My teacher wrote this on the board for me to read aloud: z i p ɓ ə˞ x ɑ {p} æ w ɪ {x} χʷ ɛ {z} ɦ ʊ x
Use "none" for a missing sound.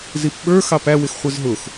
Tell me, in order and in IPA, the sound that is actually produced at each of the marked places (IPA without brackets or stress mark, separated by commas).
p, x, z